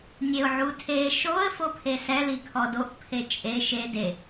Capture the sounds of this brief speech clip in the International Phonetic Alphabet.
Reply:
nʲ e ʊ̯ ʕ u tʰ e ʃ o ə̯ f o pʰ e s ɛ l i kʰ ɔ d o ʔ pʰ e t͡ʃʼ e ʃ e d e

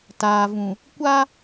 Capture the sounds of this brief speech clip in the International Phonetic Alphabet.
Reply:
t aː˨ v ũ˨ | kʷ a˦

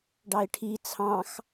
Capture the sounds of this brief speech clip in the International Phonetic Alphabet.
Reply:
ɖ ɑ ɪ̯ ʈʰ i t͡sʰ ɑ̃ x

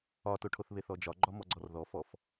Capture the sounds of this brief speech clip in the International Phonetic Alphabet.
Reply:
ɒ t o ʈʰ o θ β e θ ɔ d͡ʒ ɒ ɡ͡ǃ ɒ m ɔ ɡ͡ǀ ɔ r ð ɔ f ɔ f

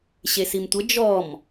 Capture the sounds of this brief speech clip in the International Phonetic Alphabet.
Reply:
ɕ e s i m tʷ ə d͡ʒ ɔ m

